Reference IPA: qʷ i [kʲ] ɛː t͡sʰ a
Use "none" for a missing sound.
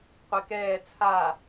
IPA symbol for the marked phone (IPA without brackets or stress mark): k